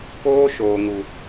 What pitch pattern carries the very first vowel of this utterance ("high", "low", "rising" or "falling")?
high